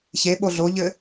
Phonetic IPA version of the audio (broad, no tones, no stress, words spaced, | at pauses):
çe ɓoɮoʎɘ